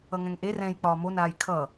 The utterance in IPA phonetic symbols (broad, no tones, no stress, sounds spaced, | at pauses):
ʌ ŋ ɛ̃ ŋ ʔ e r ɛ̃ j k͡p ɒː m o n aː j kʰ ʌ